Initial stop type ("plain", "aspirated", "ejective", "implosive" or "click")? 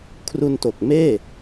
aspirated